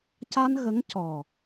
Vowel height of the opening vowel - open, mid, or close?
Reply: open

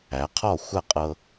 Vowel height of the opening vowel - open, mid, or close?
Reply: open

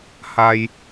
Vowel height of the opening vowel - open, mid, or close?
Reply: open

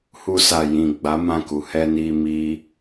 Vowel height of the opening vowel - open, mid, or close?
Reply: close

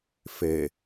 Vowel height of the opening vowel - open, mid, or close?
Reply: mid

